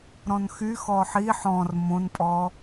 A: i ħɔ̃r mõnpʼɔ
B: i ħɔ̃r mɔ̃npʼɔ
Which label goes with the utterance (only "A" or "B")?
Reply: A